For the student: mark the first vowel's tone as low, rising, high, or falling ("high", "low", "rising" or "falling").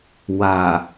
low